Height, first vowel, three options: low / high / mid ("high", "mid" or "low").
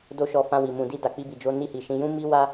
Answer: mid